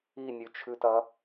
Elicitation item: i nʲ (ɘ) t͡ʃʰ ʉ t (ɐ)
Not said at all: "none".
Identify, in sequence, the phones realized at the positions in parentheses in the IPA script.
ʉ, ɐ

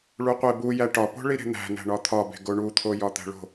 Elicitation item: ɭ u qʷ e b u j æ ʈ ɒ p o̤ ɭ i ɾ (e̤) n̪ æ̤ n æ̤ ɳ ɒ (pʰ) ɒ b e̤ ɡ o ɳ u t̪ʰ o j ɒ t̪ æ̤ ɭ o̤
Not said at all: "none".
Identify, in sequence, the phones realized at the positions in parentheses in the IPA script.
e̤, t̪ʰ

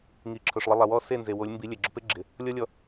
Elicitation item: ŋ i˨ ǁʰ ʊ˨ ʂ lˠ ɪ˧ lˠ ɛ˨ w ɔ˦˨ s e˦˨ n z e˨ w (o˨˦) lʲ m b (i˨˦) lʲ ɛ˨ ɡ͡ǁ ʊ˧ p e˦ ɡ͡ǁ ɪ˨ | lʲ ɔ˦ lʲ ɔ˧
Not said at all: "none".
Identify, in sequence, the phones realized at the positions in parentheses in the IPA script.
o˨˦, i˨˦

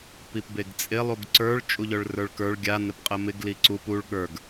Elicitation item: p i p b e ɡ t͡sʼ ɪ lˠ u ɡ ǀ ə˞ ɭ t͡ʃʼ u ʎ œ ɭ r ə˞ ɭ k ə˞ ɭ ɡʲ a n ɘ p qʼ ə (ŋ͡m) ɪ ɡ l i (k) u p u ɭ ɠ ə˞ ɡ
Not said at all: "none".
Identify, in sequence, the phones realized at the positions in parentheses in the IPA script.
m, ǀ

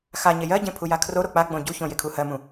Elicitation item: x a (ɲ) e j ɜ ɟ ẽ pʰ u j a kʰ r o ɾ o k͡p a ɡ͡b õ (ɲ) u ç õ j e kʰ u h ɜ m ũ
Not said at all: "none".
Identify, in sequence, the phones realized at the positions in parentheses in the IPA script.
ɲ, ɟ

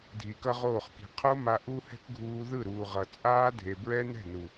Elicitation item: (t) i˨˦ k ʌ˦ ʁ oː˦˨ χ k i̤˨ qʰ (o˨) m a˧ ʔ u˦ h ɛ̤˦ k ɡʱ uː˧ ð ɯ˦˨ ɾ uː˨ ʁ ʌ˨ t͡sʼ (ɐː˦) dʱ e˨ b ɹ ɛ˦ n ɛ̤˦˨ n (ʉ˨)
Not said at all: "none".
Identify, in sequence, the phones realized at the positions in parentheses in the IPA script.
dʱ, o˦, aː˦, u˨

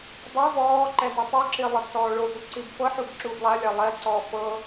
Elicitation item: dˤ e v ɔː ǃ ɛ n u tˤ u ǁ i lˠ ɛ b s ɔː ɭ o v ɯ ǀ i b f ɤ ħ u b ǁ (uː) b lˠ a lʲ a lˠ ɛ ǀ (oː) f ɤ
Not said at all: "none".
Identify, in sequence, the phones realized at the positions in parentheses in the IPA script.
uː, ɔː

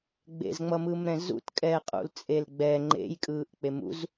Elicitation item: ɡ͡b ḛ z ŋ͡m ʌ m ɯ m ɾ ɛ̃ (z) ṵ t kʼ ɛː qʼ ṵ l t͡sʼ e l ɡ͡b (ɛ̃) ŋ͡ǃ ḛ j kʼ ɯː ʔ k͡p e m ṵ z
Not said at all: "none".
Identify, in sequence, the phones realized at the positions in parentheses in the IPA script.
z, ɛ

